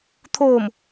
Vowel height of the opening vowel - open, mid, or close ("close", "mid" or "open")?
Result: mid